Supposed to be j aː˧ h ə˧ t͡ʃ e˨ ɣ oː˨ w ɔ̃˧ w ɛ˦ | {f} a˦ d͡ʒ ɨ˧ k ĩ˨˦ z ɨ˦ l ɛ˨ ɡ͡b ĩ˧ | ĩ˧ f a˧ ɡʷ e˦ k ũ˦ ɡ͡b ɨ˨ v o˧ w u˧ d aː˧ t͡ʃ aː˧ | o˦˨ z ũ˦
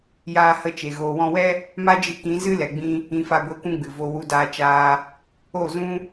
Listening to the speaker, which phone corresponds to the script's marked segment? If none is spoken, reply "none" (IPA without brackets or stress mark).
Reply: m